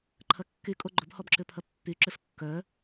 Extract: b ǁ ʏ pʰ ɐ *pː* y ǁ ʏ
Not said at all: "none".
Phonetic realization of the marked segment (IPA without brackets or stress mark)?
pː